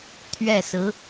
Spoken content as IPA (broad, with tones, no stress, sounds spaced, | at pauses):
t̪ʰ ɥ ɛ˥˩ s ɹ̩˧˥